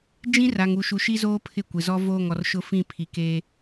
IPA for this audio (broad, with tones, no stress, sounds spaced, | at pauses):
d͡ʒ ĩ˦ r a˨ ŋ u˨ ʃ u˨ ʃ i˦ z oː˦ pʰ ɪ˦˨ kʷ ɪ˨ z ɔ˦ v oː˦˨ ŋ ɔ˨ r ʃ ʊ˦ f ĩ˦˨ pʰ i˨ k eː˦